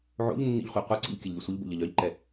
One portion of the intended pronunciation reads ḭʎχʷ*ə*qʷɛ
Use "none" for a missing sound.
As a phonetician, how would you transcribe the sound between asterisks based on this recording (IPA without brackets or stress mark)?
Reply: œ